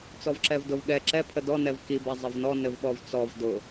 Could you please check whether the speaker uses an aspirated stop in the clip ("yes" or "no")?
yes